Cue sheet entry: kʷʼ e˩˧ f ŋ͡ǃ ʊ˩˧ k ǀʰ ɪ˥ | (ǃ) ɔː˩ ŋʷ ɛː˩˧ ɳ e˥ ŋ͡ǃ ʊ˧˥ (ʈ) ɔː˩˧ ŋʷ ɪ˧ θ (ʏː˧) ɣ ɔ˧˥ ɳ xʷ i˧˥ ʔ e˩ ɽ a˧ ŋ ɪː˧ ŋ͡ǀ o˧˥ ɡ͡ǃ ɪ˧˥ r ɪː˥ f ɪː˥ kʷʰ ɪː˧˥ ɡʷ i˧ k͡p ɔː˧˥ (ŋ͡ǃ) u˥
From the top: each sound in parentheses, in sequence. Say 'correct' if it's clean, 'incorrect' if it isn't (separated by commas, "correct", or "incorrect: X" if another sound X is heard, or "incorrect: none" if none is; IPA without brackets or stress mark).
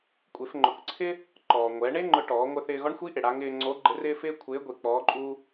correct, correct, incorrect: ɪː˧, incorrect: ǃʼ